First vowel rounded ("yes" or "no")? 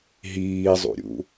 no